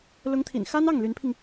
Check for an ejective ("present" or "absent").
absent